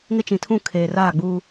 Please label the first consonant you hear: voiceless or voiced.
voiced